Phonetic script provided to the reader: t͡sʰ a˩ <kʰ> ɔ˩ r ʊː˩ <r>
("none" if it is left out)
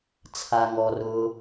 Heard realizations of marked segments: ŋ, none

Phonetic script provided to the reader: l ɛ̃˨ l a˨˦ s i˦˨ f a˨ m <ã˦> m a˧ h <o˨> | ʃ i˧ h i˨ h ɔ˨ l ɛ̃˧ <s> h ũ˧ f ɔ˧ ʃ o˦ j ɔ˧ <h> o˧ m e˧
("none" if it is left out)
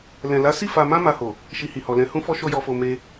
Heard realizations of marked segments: ã˧, o˨, none, f

